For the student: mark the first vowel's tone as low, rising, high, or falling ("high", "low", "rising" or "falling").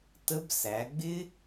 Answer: rising